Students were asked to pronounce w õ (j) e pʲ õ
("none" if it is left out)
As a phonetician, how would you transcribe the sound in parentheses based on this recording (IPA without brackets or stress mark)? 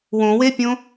w